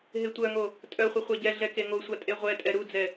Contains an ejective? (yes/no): yes